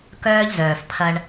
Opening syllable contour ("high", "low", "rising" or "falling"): high